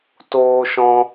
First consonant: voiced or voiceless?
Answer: voiceless